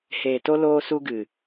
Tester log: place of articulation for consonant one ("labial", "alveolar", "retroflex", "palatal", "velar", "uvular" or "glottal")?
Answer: glottal